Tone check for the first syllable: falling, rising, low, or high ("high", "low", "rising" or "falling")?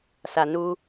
low